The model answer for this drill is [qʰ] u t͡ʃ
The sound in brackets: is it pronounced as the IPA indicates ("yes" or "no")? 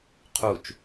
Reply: yes